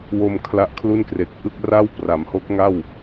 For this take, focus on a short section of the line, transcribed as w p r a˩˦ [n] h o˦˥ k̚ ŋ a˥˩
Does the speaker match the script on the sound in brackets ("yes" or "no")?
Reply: no